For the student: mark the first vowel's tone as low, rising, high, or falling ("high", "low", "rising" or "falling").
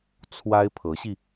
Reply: high